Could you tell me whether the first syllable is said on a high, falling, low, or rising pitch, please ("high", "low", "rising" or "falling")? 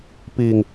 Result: low